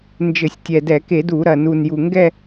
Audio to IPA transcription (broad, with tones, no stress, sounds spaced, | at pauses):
n d͡ʒ ɘ˧˩˧ sʲ tʲ ɛ˨˩ d ɛ˧˩˧ k e˧˩˧ d u˧˩˧ ɾ ɐ˨˩ n u˨˩ n j u˨˩ ŋ ɡ ɛ˥˧